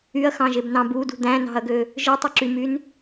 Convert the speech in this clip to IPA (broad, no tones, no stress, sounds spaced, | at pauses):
y ɐ̯ x ɑ̃ ʒ e b n ɑ̃ b u d ṳ d̪ æ̃ n ɑ̤ ɐ̯ ɡ ø | ʒ ɯ tˤ y ǁ y m y n